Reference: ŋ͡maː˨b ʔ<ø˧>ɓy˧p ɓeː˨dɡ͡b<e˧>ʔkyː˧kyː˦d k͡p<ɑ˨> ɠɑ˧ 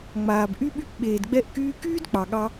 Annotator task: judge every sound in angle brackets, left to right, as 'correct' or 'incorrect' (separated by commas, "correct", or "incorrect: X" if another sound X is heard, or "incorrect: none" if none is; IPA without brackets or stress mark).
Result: incorrect: y˧, incorrect: ɛ˧, correct